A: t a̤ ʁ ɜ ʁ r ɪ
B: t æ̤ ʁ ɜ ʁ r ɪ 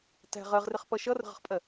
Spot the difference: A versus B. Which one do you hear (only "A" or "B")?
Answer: B